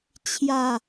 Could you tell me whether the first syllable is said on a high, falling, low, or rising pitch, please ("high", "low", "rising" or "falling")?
falling